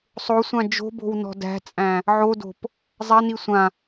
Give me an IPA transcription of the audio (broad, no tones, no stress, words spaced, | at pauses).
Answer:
sˤosʷã d͡ʒo̤bo̤wnɔ̤ dæ̤t͡sʼæ̃ | ʕodo̤p | zˤæni sʷã